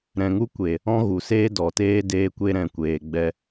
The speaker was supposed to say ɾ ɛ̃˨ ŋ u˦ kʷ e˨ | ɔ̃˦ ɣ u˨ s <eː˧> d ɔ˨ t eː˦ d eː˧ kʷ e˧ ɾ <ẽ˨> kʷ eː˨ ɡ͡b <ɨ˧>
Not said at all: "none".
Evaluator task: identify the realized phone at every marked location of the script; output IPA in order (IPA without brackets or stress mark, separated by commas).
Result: eː˦, ɛ̃˨, ɛ˧